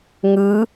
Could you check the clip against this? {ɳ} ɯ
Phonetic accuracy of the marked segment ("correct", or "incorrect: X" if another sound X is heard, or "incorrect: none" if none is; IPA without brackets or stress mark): incorrect: ŋ